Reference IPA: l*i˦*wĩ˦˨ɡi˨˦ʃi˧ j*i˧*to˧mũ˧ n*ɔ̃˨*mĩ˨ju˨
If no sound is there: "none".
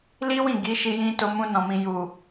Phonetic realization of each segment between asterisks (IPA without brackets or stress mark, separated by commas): i˦, ĩ˧, ɔ̃˨